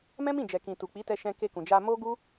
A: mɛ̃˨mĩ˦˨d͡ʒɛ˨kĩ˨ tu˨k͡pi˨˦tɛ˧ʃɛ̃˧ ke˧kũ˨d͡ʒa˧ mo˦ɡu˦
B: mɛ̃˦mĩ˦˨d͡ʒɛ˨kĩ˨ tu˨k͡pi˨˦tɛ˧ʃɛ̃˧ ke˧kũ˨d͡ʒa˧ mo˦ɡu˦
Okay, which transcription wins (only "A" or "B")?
B